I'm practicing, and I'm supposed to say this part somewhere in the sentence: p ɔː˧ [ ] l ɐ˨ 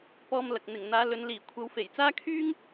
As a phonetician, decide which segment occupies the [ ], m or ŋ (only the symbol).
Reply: m